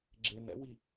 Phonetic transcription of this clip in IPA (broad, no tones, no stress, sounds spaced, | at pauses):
ɡ͡ǁ e n ɛ̰ w i